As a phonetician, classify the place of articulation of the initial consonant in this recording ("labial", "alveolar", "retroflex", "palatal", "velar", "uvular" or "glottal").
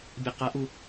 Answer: labial